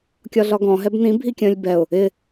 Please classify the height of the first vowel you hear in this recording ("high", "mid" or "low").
low